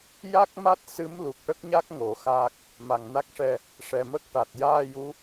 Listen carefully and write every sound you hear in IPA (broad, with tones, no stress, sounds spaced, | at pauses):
j a˦˥ k̚ m a˦˥ t̚ s ɨ˧˥ m l u˨˩ k̚ ʈ ə˦˥ k̚ ɲ a˦˥ k̚ ŋ o˨˩˦ x aː˦˥ k̚ | m a˨˩ ŋ n a˦˥ k̚ ʂ ɛ˧ | ʂ ɛ˨˩ m ə˦˥ k̚ ʈ a˨˩ t̚ j aː˧ j u˧˥